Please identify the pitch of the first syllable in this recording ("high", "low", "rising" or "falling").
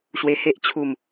low